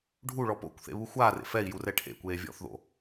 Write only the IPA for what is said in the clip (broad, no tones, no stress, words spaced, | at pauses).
ɖʱuɭɔ po̰kʷ θḛβuxʷaːrḛ fɛi̯ jurɛʈʰḛkʷeː vʲɔ̰θðo̰